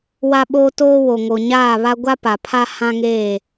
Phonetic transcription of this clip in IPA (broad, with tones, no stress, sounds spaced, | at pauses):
w a˦ ɓ oː˦ t oː˦ w o˨ ŋ o˨ ɲ aː˦˨ β a˦ ɡʷ a˦ p a˨ pʰ a˦ h ã˦ ŋ eː˦˨